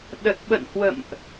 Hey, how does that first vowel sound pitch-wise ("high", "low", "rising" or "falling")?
low